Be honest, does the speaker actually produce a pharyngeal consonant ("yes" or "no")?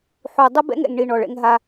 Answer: yes